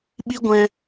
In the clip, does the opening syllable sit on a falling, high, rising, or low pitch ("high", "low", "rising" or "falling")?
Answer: high